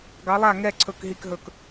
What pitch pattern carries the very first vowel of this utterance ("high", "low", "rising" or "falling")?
rising